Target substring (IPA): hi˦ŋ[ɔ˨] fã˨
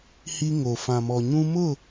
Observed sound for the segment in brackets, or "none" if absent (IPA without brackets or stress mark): o˨